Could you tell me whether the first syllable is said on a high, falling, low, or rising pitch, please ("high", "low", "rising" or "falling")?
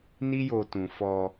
high